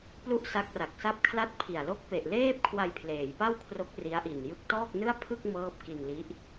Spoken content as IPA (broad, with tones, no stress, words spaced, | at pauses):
plu˥˩ʔsa˦˥k̚ra˨˩k̚sa˥˩p̚ kʰla˥˩t̚ pʰi˨˩a̯lo˥˩k̚ pe˨˩ʔleː˥˩p̚ kʰwa˧jpʰleː˩˦jpa˥˩wkʰro˦˥k̚ ri˦˥a̯ʔi˨˩n jɯ˦˥k̚tɔː˥˩k̚nɯ˥˩a̯ pʰɯ˥˩k̚ mɤː˥˩p̚ ki˧nli˦˥ʔ